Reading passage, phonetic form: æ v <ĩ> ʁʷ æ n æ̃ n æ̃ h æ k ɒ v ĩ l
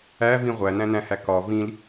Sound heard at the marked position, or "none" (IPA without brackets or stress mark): ĩ